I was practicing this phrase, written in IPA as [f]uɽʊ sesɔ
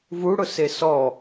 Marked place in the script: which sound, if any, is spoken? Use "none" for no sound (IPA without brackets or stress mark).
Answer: v